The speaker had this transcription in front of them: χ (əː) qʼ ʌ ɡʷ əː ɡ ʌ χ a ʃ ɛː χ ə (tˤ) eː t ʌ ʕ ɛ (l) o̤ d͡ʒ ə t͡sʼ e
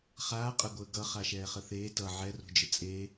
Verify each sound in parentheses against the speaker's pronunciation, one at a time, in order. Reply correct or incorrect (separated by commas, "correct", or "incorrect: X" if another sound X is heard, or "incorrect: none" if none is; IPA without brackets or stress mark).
incorrect: aː, incorrect: θ, incorrect: r